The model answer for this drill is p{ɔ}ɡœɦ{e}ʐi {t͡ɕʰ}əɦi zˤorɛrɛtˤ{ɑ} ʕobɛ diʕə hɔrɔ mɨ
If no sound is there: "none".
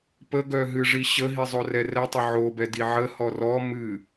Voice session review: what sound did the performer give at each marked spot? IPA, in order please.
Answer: ə, ɨ, ɕ, ə

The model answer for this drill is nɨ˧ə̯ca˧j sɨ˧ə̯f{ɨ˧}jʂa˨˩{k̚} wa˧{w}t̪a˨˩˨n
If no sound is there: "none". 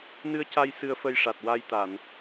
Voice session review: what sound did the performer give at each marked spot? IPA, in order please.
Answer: ə˧, t̚, j

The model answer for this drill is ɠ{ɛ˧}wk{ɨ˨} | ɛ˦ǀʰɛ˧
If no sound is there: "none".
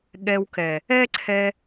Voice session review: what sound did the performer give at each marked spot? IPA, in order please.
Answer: ɛ˧, ɛ˨

